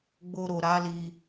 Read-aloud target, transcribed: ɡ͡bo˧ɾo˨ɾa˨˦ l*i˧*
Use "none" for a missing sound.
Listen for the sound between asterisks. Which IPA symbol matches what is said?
i˧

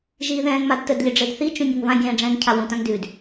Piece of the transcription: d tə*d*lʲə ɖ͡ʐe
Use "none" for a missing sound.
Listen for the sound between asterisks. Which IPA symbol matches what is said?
d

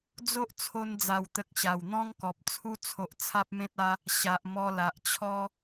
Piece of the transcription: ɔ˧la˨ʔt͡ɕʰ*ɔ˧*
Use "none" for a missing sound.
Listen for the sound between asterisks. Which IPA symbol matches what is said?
ɔ˦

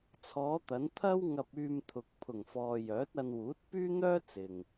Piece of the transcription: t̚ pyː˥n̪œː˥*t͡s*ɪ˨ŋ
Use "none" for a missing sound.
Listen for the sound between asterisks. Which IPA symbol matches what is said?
t͡s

